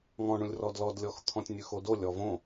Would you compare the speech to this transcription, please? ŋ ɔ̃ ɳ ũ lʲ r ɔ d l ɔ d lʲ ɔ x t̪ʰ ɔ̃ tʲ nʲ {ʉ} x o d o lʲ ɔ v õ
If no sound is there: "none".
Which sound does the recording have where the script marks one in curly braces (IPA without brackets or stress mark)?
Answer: ʉ